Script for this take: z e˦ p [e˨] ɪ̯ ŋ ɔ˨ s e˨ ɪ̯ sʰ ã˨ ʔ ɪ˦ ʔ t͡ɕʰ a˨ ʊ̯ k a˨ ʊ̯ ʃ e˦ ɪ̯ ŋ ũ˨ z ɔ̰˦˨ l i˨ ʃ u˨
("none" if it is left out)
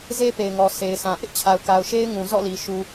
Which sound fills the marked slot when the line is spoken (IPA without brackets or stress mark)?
e˨